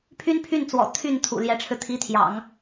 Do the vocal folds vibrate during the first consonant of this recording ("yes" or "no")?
no